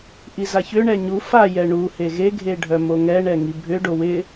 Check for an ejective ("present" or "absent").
absent